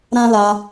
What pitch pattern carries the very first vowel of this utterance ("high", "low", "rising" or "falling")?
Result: high